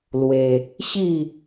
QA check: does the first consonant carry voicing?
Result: yes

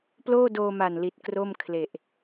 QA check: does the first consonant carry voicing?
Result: no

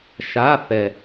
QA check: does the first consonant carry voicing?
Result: no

